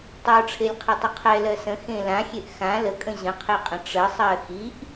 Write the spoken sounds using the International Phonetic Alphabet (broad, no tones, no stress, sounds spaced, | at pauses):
tˤ ə˞ ʈ͡ʂʰ e lʲ qʰ i tˤ ə qʰ ɛ l ɜ s ə̃ x ẽ l ã xʲ e ʔ x ã l ə kʼ ə̃ ʑ ə̃ qʰ e qʼ ə̃ ʈ͡ʂ ə sˤ ɜ x i ʔ